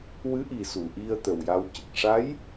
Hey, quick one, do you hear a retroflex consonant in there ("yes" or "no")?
yes